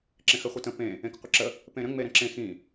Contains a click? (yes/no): yes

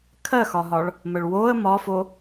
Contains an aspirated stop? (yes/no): yes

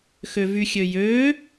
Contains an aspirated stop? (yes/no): no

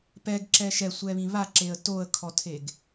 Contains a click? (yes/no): yes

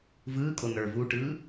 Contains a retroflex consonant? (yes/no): yes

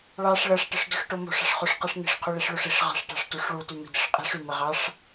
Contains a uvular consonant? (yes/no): yes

